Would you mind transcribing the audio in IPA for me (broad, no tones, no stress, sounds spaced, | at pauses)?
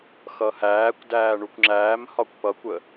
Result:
x ʌ h æː kʷ d æː ɳ u kʷ ŋ͡ǁ æː m h ɒ kʷ p ʌ kʷ ə